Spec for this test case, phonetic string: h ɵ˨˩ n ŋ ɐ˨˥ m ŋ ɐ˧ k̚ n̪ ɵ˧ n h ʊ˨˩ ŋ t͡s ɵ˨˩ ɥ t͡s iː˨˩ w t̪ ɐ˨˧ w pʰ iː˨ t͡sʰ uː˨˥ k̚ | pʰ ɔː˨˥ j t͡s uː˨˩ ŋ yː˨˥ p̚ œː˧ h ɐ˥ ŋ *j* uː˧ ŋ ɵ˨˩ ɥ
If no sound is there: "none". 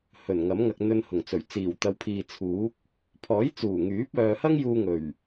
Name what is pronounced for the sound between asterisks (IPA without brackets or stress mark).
j